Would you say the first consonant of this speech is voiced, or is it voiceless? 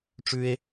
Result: voiceless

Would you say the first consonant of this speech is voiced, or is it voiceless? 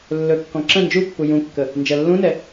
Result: voiced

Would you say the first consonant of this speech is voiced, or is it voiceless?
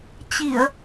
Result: voiceless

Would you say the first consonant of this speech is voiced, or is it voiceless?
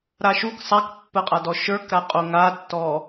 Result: voiced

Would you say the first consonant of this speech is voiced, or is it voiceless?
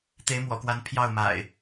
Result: voiceless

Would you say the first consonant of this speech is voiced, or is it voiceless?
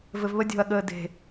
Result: voiced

